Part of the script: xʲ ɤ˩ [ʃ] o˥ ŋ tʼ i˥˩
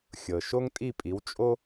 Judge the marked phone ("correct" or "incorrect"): correct